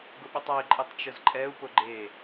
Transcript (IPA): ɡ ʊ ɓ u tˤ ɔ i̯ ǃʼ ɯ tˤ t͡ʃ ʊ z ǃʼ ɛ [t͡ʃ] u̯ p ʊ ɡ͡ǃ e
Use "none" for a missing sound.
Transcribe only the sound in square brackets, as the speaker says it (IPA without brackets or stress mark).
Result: none